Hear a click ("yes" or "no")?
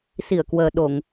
no